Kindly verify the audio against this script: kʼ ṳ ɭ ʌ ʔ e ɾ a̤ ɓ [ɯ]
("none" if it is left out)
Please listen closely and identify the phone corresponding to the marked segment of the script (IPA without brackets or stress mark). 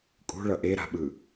ɯ